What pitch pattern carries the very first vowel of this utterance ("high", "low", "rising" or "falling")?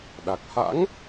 low